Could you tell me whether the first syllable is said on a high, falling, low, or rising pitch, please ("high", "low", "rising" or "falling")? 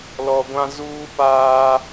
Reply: low